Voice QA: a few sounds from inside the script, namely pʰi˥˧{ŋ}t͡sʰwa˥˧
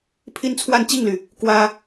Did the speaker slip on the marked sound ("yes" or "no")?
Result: yes